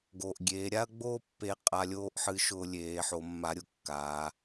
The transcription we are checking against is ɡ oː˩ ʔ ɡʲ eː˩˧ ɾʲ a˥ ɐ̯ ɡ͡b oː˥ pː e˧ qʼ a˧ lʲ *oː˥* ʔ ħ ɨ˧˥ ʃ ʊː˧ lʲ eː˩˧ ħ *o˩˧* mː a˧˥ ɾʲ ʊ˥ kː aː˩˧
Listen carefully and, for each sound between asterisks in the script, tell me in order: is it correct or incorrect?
correct, correct

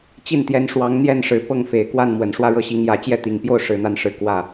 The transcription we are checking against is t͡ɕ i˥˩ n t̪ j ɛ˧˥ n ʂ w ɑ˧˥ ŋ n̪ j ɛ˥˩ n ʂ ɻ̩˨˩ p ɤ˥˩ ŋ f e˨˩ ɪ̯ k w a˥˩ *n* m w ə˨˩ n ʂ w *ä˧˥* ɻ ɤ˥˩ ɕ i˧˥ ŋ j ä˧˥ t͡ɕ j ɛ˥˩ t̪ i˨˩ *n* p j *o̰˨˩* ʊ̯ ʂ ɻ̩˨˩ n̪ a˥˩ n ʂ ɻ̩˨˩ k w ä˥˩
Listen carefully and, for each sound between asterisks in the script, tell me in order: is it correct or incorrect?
correct, incorrect: ä˥˧, incorrect: ŋ, incorrect: o˥˩

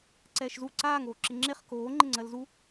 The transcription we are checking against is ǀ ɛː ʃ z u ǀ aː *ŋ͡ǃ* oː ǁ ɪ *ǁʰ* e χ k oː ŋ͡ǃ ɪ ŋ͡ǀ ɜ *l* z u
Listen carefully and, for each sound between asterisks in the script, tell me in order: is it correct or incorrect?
incorrect: ŋ, incorrect: ŋ͡ǁ, correct

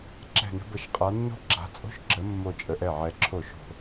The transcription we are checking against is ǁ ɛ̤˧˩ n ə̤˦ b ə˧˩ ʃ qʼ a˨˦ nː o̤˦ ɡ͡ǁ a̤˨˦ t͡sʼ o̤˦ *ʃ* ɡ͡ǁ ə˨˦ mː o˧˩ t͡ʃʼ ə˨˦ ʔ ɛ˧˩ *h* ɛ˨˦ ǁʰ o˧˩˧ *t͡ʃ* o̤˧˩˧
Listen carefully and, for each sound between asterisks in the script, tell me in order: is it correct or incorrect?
correct, incorrect: ʕ, incorrect: ʃ

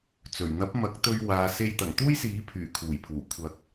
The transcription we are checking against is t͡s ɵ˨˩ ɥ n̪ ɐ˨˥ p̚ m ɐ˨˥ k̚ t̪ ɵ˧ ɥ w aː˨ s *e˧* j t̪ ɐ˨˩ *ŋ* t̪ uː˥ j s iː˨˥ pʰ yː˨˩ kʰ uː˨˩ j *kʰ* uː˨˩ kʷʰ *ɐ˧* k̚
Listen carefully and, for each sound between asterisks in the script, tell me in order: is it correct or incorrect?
correct, correct, incorrect: pʰ, incorrect: ɐ˨˥

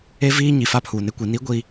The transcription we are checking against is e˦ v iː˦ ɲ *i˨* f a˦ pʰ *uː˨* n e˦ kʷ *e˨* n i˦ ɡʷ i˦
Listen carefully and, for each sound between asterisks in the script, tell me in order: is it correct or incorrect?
correct, correct, incorrect: i˨

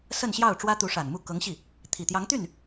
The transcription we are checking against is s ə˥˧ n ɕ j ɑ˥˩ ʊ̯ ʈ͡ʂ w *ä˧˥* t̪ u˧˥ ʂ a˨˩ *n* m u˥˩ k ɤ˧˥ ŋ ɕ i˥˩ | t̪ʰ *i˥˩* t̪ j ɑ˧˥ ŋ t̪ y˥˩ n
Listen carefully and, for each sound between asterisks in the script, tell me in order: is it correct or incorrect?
incorrect: ä˥, correct, incorrect: i˨˩

